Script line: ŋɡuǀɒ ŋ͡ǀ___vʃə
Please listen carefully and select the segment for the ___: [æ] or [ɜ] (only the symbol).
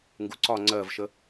ɜ